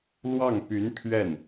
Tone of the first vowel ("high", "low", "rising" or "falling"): falling